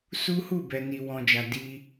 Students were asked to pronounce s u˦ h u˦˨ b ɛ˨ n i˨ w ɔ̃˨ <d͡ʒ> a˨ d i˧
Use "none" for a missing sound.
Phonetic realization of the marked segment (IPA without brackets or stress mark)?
d͡ʒ